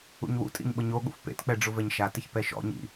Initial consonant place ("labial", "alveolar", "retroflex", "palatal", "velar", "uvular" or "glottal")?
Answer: palatal